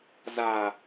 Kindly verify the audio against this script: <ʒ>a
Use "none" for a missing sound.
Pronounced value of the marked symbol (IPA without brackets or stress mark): z